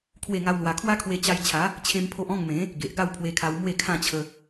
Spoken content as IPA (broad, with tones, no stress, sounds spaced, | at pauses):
kʰ w e˥˧ ŋ a˦ w l w a˧ kʰ w a˦ kʰ w e˧ t͡ɕ a˧ j t͡ɕʰ a˨˦ | t͡ɕʰ ẽ˦ m pʰ o˦ ʔ ɔ̃˥˧ ŋ m ẽ˨˦ | ɡ e˨ ʔ ɡ a˥˧ w pʰ w e˧ kʰ a˧ w m w e˥˧ kʰ ã˥˧ t͡ɕʰ ə˧